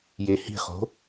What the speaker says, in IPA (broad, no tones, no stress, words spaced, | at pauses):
jehi̤χo̤